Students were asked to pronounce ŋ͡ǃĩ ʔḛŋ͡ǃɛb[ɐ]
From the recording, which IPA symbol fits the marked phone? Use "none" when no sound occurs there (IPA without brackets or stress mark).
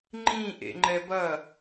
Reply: ɐ